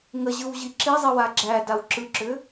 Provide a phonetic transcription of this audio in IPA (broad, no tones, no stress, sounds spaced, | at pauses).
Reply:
ŋ ə ʑ ɯ w ʑ i ǁ i zˤ i w a ɡ͡ǁ æ d a w ǁ ɯ ǁ ʏ